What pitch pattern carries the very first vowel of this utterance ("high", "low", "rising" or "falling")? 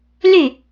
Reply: falling